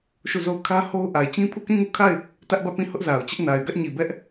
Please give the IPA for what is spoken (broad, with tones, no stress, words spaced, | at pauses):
ʃu˦˨zo˦˨ʊ̯ kʰä˦ ho˦ʊ̯ ʔa˨ɪ̯ t͡ɕĩ˦pʰu˦˨ kĩ˦˨ŋu˦˨kʰa˦˨ɪ̯ | tä˦ʔbä˦˨pĩ˦˨ hʊ˦ʔza˨ʊ̯t͡ɕɪ˦ʔ na˨ɪ̯ ɡä˦ʔɲi˨bɛ˦ʔ